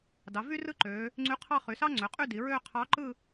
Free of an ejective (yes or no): no